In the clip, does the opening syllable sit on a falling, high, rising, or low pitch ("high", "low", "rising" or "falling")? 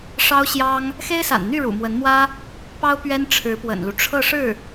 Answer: high